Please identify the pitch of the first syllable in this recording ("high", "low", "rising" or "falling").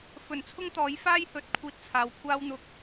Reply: low